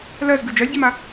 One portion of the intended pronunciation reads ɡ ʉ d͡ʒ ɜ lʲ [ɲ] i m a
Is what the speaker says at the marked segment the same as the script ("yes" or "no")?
no